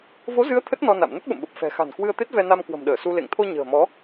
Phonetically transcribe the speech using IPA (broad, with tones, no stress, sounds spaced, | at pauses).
v o˨˦ z ɨ˨˦ ə̯ t̪ʰ ə˦˥ t̚ n ɔ˧ n a̰˧˨ m n ə˦˥ t̚ ɓ ə̰˧˨ m ɓ ə˨˩ p̚ f ɛ̤˨˩ x a̤˨˩ n k w ɨ˧ ə̯ t̪ e˦˥ t̚ v ɛ˧ n a˧ m k w ə̤˨˩ m ɗ əː˧˩ s u˧ l ḛ˧˨ ŋ t̪ʰ o˧ ɲ ə̤ː˨˩ m ɔ˨˦